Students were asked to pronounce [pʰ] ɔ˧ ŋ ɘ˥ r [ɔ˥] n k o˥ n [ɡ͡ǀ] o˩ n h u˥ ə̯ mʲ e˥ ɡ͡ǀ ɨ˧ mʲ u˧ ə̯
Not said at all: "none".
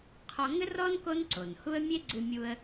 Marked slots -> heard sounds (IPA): qʰ, ɔ˥, ǀ

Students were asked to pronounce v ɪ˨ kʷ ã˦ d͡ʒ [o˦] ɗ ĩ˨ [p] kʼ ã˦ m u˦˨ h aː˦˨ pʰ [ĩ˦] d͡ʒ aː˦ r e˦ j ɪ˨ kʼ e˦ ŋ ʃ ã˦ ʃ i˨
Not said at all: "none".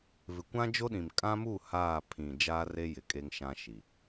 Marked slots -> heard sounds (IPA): o˦, m, ĩ˨

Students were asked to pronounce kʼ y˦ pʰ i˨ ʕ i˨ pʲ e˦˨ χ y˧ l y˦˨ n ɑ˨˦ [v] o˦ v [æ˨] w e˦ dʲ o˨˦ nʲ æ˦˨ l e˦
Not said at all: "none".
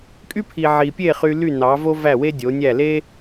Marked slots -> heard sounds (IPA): v, æ˦˨

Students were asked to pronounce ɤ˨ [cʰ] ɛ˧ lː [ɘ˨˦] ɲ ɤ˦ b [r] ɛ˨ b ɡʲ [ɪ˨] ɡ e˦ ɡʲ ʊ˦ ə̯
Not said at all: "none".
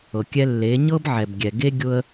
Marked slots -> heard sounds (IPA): kʲ, e˨˦, ʕ, ɛ˨

